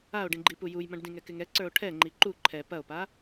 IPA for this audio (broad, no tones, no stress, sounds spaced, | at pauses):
a o̯ ɖ ĩ ɡ͡ǃ i p u j u j m ɐ̃ ɖ d ĩ ŋ ɛ k ɪ ŋ ɛ ǀ ə˞ o̯ ʈʰ ɛ ŋ͡ǃ i ǃ u ǃʰ ɛ p ɐ o̯ p a